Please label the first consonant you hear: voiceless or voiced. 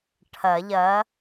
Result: voiceless